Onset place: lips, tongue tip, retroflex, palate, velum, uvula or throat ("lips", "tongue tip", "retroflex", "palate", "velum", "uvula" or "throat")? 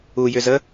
palate